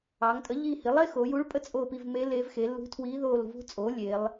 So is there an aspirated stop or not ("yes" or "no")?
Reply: yes